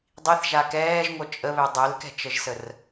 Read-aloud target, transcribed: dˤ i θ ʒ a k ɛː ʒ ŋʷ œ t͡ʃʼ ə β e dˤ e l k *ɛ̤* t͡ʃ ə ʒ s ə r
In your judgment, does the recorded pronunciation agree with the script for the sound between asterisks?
yes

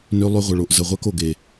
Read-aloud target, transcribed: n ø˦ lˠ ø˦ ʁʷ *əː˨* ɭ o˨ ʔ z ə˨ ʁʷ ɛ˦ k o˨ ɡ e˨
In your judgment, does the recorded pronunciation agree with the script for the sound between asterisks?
no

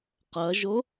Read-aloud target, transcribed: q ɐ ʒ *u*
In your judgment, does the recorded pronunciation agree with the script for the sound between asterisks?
no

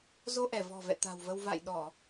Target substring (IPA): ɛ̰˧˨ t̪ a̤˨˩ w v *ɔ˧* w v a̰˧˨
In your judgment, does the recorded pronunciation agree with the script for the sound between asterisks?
no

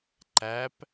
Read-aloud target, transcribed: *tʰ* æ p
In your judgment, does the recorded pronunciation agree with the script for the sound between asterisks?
no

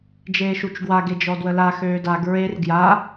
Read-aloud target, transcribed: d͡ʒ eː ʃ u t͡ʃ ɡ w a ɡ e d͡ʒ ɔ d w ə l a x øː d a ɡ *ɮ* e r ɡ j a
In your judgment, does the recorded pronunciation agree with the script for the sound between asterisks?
no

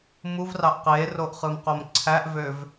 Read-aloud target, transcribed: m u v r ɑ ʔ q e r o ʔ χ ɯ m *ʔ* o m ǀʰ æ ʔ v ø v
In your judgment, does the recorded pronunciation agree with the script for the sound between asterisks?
no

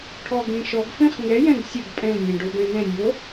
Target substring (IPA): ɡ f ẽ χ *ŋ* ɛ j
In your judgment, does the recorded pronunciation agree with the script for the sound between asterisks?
yes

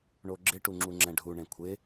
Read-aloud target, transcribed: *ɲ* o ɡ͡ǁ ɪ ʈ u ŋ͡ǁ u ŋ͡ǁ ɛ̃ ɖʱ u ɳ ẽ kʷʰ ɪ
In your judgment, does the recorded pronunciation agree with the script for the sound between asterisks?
no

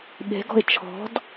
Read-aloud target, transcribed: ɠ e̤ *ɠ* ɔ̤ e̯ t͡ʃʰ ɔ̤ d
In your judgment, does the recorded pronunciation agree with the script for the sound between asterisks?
no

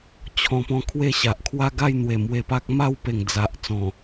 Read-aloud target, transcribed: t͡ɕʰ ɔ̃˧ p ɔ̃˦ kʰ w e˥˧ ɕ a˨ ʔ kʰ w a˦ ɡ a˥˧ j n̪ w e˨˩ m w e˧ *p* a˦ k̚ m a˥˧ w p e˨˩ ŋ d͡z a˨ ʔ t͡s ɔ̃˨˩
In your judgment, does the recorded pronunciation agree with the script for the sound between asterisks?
yes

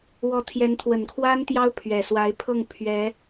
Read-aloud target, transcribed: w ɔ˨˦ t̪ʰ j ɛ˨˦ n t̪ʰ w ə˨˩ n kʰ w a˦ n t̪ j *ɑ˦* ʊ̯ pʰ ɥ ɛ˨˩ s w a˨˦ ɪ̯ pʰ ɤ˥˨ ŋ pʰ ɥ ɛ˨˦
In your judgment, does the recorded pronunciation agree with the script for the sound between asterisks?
yes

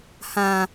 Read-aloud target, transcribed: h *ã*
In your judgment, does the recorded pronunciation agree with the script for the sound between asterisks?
yes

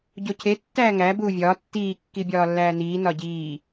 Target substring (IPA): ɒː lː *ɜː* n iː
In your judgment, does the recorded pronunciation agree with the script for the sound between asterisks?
no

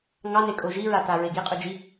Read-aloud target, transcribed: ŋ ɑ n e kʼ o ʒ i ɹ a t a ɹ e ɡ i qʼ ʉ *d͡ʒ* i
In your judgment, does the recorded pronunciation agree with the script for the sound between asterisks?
yes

